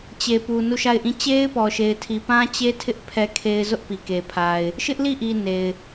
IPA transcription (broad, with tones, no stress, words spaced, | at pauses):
t͡ɕe˨pu˨ nu˦˨ʃa˦˨ɪ̯ʔĩ˦˨ t͡ɕe˦ɪ̯pɔ˨ ʃe˨ɪ̯tʰi˨ pã˦t͡ɕe˦tʰɪ˦ʔ pʰɛ˦kʰe˦ɪ̯ zʊ˦ʔpi˨ke˨pʰa˨ɪ̯ | ʃɪ˦ʔli˦˨ʔi˨ ne˨ɪ̯